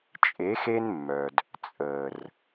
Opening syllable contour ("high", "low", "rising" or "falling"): rising